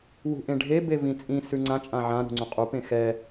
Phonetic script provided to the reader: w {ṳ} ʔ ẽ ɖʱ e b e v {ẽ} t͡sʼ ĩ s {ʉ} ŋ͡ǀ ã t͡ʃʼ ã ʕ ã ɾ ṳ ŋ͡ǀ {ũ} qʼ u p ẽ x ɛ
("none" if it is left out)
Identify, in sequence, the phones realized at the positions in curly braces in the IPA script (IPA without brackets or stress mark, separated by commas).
ṳ, ĩ, ʉ, ũ